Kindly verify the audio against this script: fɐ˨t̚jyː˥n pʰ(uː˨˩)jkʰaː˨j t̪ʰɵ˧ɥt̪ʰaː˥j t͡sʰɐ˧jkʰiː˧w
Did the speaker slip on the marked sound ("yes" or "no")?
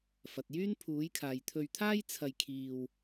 yes